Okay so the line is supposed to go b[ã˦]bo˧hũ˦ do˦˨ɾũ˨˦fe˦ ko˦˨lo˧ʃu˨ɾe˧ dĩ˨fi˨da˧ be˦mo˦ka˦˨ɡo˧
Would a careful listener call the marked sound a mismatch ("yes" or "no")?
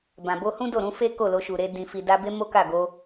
yes